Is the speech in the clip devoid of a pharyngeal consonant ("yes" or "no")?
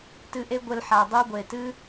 no